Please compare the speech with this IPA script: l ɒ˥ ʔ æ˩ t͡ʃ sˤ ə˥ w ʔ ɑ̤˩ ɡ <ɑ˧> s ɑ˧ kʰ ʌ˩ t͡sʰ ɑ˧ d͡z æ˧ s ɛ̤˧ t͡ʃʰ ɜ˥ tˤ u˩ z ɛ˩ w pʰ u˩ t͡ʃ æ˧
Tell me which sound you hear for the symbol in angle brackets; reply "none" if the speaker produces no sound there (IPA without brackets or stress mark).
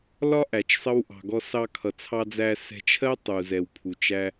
ɔ˧